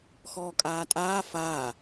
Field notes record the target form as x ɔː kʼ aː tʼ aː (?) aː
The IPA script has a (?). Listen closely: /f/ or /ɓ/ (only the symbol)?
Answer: f